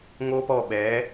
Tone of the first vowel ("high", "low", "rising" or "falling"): high